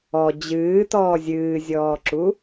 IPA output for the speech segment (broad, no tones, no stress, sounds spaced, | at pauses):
ɔ d͡ʑ ɨː t ɔː zʲ ɨː zʲ ɔː ǁ u